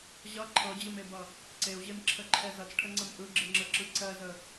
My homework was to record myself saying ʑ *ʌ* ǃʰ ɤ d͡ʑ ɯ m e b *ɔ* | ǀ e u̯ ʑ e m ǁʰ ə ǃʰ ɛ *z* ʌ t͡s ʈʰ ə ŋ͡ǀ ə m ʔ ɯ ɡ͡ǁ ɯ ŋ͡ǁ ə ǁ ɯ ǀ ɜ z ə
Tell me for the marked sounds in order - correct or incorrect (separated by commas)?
correct, incorrect, correct